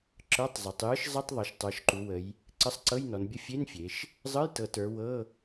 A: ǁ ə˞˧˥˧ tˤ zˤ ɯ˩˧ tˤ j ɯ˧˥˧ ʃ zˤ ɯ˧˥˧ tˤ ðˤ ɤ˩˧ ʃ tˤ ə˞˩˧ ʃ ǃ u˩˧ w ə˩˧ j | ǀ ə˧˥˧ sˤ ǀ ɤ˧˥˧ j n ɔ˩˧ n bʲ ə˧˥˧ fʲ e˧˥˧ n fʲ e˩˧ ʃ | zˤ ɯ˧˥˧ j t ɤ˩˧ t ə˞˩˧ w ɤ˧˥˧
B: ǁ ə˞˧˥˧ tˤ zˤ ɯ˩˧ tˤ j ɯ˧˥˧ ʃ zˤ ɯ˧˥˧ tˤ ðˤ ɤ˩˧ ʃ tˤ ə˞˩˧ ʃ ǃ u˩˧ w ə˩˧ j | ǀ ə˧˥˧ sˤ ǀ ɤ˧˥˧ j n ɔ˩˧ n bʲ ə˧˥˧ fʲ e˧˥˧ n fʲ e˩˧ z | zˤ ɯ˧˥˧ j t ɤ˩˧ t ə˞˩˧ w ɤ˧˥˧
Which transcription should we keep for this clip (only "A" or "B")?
A